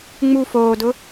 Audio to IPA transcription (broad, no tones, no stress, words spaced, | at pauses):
ŋ͡mu foːdʊ